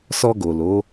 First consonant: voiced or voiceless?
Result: voiceless